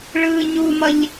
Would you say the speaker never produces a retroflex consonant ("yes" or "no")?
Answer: no